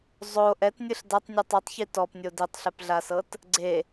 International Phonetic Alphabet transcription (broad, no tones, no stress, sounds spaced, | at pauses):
zˤ o ʔ ɛ t nʲ ɯ ɬ d a tˤ nʲ ɯ tˤ u tˤ ç i t ɔ p nʲ o d i tˤ ɬ ɛ p ɮ a s ɤ t | ɡ͡ǀ e